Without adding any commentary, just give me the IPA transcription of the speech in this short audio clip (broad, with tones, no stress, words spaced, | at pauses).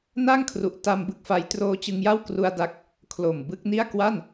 na˥˩ŋkʰru˨˩ʔta˧m bɯ˦˥k̚fa˦˥j troː˧t͡ɕɯ˧ŋja˥˩wkru˧a̯ da˦˥k̚ | kʰlo˨˩m bɯ˦˥k̚ni˥˩a̯ kwa˥˩n